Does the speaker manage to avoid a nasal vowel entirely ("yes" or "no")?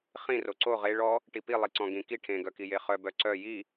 no